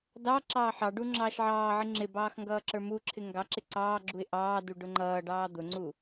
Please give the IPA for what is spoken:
d ɑ ǁ ɑː ħ ɑ ɖ u ŋ͡ǁ ɑː ʃ ʕ ɑː ʕ ɪ ŋ͡ǁ ɪ b ɑː x ŋ ɡ ʌː ǁ ə˞ m u ǁʰ ɪ ŋ ɡ ɑ ǁ ɪ ǀ ɑː ɡ͡ǁ u ɪ̯ ʔ ɑː d u ɖ ʊ ŋ͡ǃ ʌː ɖ ɑː d̪ ʊ ŋ͡ǀ u

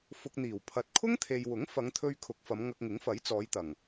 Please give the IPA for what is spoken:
f ʊ˧ k̚ n̪ iː˨˩ w pʰ ɐ˨ t̚ kʰ ʊ˥ ŋ t̪ʰ e˨ j w ʊ˨˥ ŋ f ɐ˨˧ ŋ t̪ʰ ɵ˧ ɥ kʰ ʊ˨˥ k̚ f ɐ˨˧ m ŋ ɐ˧ k̚ ŋ ɪ˨˥ ŋ f ɐ˨˥ j t͡s ɔː˨˧ j t̪ ɐ˨˩ ŋ

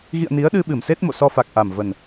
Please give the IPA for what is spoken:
ɣ ḭ˧˨ ə̯ n i˨˦ ə̯ ɗ ɨ˧ ɓ ɨ˧˩ m s e˦˥ t̚ m o̰˧˨ s ɔ˧ f a˨˩ k̚ ʔ a˨˩ m v ə˨˩ n

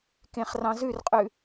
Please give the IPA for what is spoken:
k ẽ χ r ɑ̃ z ʉ r qʼ ʉ

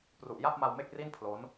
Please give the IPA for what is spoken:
p r u˨˩ ʔ j a˥˩ p̚ m a˧ w m e˥˩ k̚ r i˥˩ n pʰ l o˦˥ n

